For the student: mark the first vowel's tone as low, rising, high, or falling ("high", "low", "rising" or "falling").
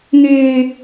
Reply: high